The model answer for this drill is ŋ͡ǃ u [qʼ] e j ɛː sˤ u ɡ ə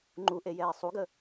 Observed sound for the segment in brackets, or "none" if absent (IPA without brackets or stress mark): ʔ